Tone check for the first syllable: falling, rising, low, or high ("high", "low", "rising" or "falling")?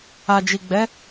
low